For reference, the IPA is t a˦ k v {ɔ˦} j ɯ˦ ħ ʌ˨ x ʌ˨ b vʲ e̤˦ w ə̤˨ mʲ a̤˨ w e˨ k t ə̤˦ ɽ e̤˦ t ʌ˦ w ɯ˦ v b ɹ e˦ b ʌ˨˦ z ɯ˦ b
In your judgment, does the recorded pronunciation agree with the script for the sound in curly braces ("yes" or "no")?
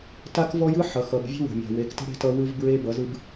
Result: yes